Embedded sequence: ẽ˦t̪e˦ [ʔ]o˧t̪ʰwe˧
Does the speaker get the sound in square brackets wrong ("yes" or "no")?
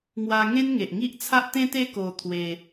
yes